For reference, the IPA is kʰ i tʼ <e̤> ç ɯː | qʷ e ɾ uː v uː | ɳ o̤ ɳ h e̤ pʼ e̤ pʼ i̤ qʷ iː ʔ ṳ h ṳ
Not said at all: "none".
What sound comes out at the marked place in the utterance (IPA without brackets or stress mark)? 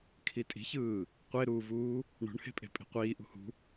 i̤